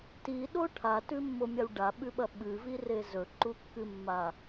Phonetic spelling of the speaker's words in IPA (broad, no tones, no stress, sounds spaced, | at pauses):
t i ɗ o ʈʰ a t ʉ mː o mʲ a w ɖ a ɓ ʉ ɓ ɐ ɓ ɨ v i r e z ɵ ǃ u kː ɨ mː a